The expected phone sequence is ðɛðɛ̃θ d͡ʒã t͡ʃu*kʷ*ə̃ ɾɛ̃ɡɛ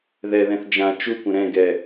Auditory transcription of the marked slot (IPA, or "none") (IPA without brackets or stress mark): kʷ